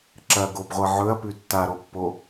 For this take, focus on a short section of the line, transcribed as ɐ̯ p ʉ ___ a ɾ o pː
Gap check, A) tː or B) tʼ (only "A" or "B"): A